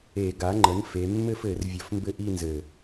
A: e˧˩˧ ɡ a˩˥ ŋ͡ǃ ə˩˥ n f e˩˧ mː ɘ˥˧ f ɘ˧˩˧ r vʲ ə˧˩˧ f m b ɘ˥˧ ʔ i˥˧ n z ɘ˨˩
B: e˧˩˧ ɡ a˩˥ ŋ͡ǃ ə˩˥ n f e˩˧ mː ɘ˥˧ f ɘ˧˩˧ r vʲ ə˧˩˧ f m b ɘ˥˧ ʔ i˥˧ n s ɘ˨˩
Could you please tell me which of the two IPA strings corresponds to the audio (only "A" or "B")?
A